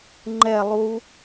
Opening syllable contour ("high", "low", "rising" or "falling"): falling